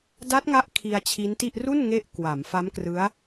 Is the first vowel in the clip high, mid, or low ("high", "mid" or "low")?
low